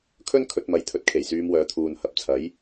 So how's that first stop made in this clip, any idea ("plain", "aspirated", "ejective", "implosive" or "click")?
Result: aspirated